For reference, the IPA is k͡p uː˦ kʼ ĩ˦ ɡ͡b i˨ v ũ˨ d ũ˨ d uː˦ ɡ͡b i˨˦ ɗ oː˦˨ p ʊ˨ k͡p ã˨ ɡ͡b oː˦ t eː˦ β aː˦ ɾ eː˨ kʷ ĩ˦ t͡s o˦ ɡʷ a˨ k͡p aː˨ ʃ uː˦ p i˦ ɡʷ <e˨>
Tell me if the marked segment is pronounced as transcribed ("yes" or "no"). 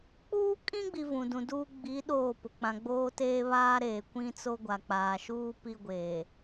no